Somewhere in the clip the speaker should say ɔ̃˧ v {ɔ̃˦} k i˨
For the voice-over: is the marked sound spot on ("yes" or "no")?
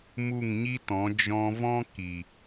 yes